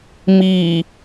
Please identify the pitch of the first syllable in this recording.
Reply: low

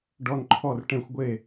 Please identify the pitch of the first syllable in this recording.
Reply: high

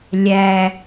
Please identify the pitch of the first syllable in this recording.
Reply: low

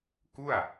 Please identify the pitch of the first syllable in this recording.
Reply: falling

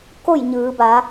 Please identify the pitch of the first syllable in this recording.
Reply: falling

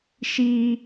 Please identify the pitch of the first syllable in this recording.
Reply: high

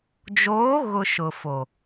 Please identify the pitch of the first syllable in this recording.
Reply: rising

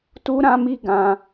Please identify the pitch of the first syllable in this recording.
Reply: high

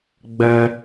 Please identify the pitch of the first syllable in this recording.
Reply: high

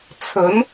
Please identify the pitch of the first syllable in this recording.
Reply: rising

